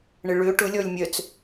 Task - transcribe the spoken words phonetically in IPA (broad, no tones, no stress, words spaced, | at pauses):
ɳeɭø ʈʊ lʲɔlʲmʲœt͡s